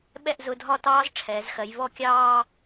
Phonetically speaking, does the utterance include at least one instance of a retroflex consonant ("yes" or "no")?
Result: yes